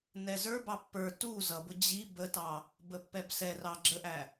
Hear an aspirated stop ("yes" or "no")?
no